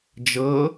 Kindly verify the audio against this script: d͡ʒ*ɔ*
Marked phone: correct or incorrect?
incorrect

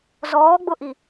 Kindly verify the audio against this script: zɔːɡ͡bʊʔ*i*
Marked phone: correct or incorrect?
correct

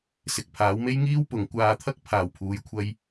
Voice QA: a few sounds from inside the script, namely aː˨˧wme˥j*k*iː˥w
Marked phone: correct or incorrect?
incorrect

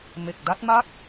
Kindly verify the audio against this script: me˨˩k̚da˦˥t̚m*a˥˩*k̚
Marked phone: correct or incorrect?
correct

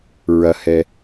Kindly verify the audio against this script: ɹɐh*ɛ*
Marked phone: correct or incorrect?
correct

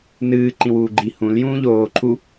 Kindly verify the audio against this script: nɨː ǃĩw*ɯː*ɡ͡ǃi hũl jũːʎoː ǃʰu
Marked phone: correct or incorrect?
incorrect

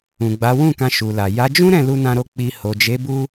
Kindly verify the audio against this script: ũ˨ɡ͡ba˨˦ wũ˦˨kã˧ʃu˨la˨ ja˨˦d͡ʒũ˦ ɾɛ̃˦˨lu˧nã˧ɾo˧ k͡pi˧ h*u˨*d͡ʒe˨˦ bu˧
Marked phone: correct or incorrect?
incorrect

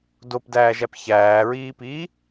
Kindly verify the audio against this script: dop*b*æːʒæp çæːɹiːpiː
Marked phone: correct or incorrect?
incorrect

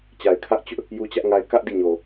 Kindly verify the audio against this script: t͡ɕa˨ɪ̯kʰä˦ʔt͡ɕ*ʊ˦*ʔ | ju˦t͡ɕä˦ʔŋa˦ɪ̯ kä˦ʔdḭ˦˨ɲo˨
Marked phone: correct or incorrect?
correct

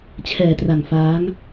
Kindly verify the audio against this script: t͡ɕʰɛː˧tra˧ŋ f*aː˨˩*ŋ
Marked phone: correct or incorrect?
incorrect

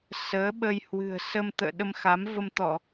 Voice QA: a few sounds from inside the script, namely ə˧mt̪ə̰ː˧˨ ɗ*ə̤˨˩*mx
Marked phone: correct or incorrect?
incorrect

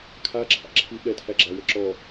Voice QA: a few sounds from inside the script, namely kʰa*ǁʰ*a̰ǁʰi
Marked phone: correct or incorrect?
correct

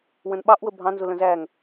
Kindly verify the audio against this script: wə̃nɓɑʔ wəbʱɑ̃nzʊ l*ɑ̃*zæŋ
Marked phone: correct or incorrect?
incorrect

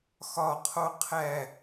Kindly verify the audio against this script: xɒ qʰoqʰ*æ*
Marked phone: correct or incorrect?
correct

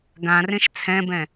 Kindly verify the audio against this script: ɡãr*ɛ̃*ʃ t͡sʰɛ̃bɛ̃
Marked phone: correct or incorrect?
incorrect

